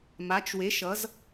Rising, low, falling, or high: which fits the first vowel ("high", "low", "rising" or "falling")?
rising